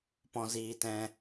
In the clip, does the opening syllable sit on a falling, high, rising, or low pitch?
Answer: low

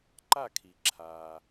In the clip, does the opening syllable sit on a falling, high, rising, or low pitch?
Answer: falling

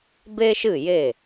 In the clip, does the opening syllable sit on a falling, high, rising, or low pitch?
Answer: high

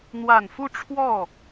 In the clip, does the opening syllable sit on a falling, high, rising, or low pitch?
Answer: low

